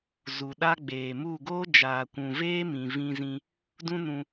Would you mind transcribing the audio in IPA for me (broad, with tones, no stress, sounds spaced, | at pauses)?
z u˨ ɗ a˦ ɡ͡b eː˨ m u˦˨ ɡ oː˦ d͡ʒ aː˨ kʷ ũ˨ v eː˦ m ĩ˨ v ĩ˧ z ĩ˧ | d ũ˦ n ũ˧